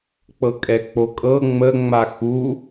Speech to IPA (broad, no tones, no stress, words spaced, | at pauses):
k͡pɤkʼɛk͡pokʼɤ ŋ͡mə ŋ͡maxu